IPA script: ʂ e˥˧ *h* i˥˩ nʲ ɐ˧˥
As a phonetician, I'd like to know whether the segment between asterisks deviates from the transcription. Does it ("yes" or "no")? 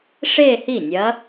no